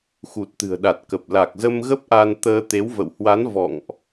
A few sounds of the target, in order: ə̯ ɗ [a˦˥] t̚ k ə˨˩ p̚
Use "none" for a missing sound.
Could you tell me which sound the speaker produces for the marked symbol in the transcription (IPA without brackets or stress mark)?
a˨˩